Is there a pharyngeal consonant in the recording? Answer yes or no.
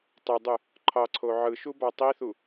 yes